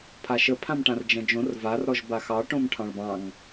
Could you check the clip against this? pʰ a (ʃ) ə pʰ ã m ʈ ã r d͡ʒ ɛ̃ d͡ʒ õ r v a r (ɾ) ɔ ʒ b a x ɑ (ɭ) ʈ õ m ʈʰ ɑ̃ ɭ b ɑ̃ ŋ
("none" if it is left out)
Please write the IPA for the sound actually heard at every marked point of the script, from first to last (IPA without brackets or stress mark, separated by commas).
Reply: ʃ, ɾ, none